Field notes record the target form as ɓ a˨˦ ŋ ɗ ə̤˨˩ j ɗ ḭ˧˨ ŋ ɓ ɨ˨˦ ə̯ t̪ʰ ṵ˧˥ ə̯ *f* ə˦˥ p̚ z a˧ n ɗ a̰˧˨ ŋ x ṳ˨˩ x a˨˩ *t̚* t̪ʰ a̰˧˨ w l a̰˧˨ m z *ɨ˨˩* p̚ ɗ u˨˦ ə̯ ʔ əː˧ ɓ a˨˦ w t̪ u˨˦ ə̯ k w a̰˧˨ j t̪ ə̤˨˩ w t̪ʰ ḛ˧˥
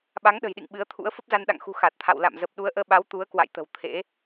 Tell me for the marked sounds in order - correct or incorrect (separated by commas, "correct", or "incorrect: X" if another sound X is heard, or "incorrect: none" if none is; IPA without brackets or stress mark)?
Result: correct, correct, incorrect: ə˨˩